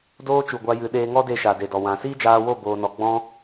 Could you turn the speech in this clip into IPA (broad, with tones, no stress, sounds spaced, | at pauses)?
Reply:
d oː˦ t͡ʃ u˨ ɡʷ a˧ j ɨ˨ ɗ eː˧ ŋ ɔ˦ d e˧ ʃ a˨ d e˨ d ɔ˨ w ã˨ s iː˦ d͡ʒ aː˧ w o˦˨ b oː˧ n ɔ˧ ɡ͡b ɔ̃˦